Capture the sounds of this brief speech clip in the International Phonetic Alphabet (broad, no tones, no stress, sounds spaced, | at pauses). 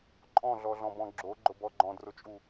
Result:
ǃʼ ɔ̃ ɮ ɔ ɮ ɔ̃ b ɔ̃ ɡ͡ǁ o ɡ͡ǃ ʊ b ɔ ɡ͡ǃ ɔ̃ d r ʊ t͡ʃʼ u